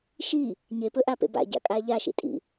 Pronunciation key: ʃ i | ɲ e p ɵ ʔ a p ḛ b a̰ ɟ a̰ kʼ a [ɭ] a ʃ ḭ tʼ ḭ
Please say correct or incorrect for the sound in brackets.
incorrect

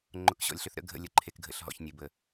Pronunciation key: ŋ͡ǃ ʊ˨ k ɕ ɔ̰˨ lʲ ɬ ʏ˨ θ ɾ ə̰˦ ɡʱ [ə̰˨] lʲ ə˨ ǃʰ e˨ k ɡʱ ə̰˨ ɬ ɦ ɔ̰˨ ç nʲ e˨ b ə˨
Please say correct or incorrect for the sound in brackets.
incorrect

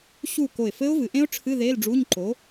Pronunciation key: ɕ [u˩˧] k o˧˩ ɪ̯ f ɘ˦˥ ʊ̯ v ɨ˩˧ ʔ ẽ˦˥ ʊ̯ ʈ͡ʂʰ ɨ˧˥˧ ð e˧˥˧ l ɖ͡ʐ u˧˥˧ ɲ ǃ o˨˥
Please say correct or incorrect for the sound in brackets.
incorrect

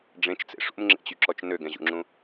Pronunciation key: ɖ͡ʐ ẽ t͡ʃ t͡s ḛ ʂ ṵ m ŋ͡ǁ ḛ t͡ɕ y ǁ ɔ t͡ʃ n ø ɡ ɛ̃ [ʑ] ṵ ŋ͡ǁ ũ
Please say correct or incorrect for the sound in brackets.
correct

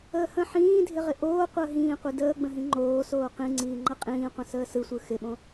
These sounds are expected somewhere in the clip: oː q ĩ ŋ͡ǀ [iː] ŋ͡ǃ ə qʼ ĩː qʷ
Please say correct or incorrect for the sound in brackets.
correct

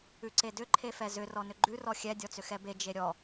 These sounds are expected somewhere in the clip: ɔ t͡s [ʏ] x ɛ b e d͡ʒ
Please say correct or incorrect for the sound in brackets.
correct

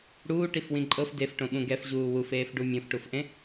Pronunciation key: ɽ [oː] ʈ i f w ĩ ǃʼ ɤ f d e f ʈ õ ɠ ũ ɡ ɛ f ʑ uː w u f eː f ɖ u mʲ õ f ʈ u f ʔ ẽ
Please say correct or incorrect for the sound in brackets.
incorrect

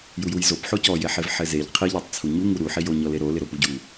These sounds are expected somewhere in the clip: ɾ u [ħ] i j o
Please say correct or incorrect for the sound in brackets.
correct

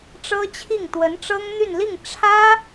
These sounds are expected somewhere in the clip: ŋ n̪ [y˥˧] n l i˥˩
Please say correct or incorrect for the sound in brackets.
correct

